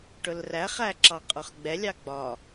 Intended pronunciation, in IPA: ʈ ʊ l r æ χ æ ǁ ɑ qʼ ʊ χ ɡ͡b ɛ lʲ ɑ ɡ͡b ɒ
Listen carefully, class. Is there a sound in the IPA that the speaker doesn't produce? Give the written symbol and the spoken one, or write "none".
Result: none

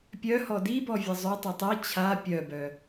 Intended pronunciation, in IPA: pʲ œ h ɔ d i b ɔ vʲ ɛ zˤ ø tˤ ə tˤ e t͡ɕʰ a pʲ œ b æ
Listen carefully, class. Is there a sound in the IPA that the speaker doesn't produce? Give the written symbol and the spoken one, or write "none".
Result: æ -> œ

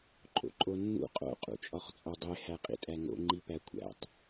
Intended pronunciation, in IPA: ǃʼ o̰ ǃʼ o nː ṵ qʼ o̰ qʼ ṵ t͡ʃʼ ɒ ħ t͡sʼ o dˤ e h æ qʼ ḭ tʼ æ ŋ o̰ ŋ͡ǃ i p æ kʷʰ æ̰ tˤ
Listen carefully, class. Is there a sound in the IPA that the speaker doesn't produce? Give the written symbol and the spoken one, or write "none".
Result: ħ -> χ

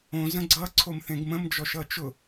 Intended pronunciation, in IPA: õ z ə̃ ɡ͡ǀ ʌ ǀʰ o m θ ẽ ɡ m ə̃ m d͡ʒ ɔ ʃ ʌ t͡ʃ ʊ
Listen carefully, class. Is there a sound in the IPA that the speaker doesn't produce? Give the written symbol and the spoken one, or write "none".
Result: none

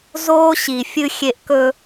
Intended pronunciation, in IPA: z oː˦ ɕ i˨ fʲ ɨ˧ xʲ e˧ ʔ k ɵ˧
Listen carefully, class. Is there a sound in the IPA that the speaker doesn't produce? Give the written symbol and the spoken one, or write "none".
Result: none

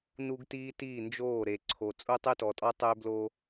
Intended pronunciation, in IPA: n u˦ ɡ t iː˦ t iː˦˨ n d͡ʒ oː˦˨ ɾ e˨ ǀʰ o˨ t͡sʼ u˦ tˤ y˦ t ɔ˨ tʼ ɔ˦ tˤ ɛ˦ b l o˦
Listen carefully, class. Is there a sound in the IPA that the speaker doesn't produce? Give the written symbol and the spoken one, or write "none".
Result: ɛ˦ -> ø˦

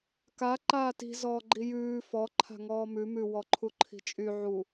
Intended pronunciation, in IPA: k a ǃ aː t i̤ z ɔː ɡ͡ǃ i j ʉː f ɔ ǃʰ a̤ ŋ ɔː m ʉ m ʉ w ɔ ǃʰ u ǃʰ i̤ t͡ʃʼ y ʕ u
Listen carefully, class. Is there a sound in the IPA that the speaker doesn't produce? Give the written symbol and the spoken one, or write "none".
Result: none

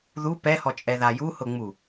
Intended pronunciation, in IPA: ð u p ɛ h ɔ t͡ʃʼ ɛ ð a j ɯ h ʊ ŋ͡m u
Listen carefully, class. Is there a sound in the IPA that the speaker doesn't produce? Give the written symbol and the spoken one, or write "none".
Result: ɯ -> u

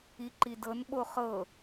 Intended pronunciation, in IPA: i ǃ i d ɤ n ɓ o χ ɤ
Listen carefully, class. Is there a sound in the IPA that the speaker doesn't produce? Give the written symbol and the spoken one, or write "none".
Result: none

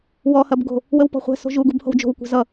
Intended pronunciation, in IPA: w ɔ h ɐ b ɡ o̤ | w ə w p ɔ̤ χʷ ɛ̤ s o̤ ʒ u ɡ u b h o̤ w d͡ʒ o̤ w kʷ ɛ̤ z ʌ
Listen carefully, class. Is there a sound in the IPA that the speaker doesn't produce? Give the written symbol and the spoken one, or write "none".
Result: none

